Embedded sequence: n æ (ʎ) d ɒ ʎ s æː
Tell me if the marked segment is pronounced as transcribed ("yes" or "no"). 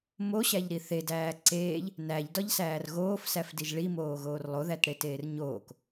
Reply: yes